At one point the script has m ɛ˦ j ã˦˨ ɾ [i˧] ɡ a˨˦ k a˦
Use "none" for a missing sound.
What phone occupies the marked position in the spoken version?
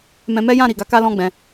i˨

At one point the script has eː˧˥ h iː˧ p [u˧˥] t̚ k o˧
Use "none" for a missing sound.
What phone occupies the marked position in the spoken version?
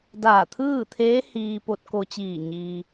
o˧˥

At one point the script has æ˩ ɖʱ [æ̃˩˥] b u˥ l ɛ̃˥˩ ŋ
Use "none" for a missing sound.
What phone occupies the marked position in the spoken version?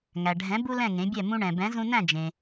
ɛ̃˩˥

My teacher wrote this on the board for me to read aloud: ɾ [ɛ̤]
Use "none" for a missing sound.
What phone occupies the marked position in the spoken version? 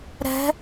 ɛ̤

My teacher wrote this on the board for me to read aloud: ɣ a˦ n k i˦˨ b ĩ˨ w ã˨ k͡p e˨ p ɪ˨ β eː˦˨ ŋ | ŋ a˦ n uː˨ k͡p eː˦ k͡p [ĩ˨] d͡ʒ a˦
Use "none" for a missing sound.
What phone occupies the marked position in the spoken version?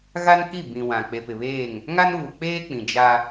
ĩ˨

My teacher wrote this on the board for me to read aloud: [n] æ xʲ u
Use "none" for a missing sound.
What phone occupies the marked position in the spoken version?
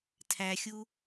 tʰ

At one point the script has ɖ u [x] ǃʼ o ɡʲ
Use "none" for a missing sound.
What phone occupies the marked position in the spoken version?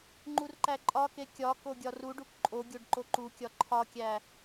k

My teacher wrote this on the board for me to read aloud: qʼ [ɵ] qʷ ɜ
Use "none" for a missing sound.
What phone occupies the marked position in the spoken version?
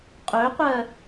ɵ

